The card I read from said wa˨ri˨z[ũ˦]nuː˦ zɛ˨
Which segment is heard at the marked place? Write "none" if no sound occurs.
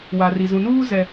ũ˨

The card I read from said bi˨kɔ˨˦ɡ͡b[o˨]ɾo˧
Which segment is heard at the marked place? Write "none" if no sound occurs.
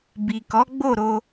o˦˨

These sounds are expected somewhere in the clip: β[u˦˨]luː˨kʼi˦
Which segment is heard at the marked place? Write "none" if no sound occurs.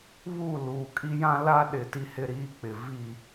u˦˨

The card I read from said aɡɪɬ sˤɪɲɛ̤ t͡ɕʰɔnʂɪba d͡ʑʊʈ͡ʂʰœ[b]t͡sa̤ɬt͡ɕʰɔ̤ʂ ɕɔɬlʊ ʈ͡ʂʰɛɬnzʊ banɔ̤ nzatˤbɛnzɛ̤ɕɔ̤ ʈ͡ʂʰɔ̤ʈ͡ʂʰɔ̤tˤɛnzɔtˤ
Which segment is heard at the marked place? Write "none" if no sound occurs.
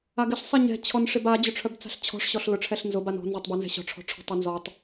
b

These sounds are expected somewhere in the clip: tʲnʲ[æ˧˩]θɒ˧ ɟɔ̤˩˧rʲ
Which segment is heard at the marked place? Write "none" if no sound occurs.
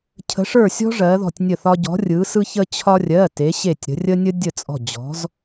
ə˧˩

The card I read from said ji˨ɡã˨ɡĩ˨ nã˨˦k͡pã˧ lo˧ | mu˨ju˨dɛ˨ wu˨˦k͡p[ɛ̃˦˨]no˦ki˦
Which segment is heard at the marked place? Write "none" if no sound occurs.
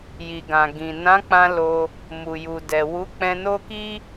ɛ̃˧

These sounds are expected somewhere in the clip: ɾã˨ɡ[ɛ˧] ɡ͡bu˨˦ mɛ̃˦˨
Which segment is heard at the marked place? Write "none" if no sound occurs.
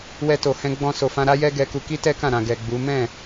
ɛ˨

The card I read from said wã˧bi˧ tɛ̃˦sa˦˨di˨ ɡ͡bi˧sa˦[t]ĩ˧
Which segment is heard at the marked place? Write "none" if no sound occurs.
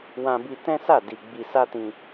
t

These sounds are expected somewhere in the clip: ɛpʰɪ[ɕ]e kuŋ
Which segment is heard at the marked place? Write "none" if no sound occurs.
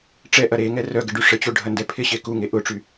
ɕ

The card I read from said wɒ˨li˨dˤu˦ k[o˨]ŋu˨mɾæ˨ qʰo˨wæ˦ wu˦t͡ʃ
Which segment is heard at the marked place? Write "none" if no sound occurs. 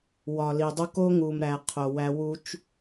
o˦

